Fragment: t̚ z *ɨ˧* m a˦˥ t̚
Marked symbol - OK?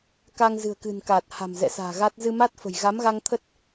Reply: yes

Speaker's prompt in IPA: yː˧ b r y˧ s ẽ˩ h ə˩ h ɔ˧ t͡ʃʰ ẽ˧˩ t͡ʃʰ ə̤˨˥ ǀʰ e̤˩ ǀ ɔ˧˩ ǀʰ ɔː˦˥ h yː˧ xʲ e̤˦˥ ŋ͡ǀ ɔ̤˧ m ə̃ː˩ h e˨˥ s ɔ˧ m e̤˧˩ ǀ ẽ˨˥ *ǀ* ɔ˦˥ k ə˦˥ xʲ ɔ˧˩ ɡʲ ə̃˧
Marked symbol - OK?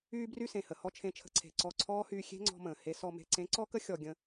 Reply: yes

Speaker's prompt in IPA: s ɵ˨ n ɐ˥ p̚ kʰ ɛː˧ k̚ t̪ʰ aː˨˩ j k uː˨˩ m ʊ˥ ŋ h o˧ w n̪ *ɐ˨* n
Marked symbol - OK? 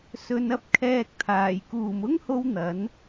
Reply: no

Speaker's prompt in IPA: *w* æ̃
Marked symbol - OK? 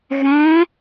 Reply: no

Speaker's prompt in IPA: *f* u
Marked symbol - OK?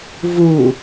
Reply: no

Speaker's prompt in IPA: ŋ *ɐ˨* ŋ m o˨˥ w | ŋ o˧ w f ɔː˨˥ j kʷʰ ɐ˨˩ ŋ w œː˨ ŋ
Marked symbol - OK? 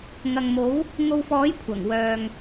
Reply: yes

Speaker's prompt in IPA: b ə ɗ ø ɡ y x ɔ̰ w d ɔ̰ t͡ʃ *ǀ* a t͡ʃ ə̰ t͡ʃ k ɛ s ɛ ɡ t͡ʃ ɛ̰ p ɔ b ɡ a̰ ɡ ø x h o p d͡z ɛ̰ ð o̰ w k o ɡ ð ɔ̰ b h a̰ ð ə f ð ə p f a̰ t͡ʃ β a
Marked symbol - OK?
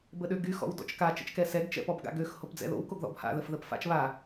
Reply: no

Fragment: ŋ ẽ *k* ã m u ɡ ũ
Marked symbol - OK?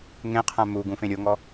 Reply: no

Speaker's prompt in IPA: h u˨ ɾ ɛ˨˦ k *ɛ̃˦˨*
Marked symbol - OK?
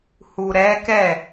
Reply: no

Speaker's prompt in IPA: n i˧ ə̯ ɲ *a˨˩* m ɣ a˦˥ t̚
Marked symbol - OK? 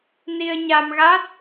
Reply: no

